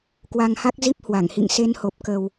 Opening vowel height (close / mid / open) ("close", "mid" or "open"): open